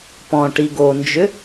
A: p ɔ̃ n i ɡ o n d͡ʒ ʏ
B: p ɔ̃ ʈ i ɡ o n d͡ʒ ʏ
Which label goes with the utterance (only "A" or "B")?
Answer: B